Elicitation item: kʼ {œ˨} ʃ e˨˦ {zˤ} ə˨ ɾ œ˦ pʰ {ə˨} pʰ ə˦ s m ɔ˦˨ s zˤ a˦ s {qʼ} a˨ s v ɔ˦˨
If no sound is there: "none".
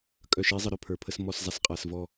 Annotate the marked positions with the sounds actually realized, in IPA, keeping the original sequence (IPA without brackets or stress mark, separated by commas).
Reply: œ˨, zˤ, ə˞˨, qʼ